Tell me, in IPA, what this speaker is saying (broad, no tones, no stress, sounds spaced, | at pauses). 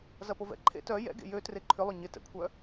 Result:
z ɐ p o v ɛ̰ ǃʰ ḛ t œ j ɛ̰ ɡ ḛ j ø t r e ǃʰ ʏ lˠ ʏ ɲ ɪ t ɛ̰ kʷʰ œ